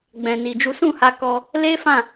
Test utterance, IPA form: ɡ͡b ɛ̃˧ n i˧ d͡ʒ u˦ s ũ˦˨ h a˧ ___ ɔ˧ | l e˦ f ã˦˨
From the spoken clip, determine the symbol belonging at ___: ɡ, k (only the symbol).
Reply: k